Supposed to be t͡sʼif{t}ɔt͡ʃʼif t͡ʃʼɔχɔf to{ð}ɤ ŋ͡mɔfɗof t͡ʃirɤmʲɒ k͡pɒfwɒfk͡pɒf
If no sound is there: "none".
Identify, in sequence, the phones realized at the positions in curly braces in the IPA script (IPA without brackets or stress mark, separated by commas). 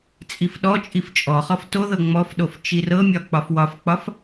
ɗ, ð